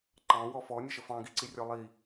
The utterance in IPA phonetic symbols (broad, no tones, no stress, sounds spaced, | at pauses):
ǃ ɑ̃ w ɔ f ɔ nʲ ə ʃ ə f ɑ̃ ɡ i ǀ i rʲ ɔ lˠ i